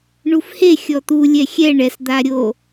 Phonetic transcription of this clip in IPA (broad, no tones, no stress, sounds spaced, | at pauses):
ɳ u f h e xʲ ɔ t̪ u lʲ ɛ xʲ ɛ ɳ ɛ s d̪ a ɾʲ o